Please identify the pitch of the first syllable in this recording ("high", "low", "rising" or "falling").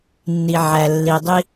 low